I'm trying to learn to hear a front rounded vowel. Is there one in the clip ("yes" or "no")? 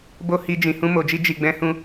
no